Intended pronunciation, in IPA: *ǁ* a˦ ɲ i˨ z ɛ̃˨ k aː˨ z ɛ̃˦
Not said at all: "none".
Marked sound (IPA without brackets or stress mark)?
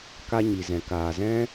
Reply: k